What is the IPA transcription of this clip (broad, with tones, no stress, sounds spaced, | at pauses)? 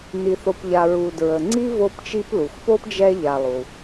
n i˨ θ o˨ p ʎ a˨ ɹ u˨ d ɹ ə˨ ŋ͡ǀ i˥ v o˦ p t͡ʃ i˦ p l u˩ x p o˥ p d͡ʒ ɛ˦ ʎ a˨ lˠ u˩